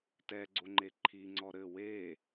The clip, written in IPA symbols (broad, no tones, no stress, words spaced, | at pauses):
tɛɡ͡ǀoŋ͡ǃe ǃʰiŋ͡ǀɔ ɾɘ we